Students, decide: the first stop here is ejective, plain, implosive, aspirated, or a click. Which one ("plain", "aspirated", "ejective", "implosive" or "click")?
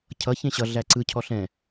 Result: aspirated